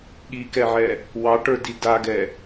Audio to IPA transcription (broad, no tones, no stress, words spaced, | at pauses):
ɠikɛʕɛ | wɑʈə˞di daɡɛ